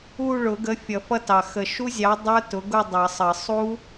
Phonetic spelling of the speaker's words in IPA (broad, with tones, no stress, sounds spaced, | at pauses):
u˥˧ ɭ ʊ˨˩˦ ɡ ə˨˥ fʲ ʌ˨˩˦ f ʌ˦˥ t ɑ˨˩ x ə˨˩ ʃ u˦˥ zʲ ɑ˨˥ dˤ ə˞˦˥ t ʊ˨˥ ɡ ʊ˥˧ dˤ ʌ˨˩˦ sˤ ə˨˩˦ sˤ u˦˥